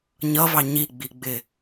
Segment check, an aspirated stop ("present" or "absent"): absent